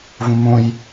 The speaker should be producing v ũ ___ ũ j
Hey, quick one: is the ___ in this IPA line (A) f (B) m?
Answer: B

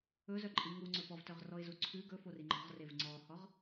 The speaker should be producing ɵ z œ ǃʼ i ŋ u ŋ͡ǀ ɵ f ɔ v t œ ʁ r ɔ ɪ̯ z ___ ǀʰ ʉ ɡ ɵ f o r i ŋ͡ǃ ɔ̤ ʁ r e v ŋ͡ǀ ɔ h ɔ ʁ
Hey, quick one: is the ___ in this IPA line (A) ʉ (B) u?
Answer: B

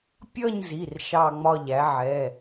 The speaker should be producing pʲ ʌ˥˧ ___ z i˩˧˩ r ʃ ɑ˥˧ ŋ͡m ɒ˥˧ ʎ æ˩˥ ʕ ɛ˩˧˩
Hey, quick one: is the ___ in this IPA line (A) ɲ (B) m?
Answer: A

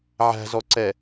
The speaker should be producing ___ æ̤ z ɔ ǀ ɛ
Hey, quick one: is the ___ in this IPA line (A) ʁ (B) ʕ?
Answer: B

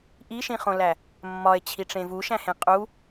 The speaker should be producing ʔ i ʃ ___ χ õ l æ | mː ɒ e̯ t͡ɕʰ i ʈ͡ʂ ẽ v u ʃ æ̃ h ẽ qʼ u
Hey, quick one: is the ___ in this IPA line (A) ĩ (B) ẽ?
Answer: A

